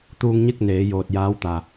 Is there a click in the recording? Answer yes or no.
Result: no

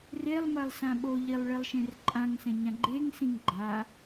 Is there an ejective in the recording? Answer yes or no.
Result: yes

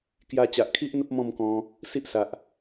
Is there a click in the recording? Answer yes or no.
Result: no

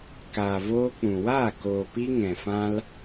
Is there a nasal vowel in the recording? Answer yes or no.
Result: yes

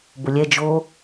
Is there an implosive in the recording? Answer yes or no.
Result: no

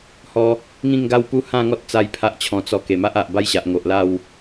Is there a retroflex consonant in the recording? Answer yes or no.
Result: no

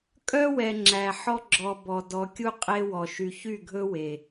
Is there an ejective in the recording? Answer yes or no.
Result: yes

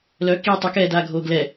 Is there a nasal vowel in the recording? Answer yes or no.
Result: no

